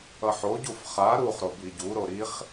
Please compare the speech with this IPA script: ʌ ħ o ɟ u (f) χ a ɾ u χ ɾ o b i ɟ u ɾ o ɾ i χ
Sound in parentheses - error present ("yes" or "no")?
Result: no